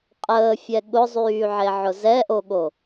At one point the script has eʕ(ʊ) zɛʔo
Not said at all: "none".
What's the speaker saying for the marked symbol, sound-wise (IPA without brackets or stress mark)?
ʊ